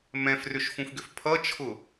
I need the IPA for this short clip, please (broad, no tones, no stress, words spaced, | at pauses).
mɛ̃frʏʃfũfɡʏf pʰʌt͡ʃʰʊ